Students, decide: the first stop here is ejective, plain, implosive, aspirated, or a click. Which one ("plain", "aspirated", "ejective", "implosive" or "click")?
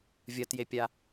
plain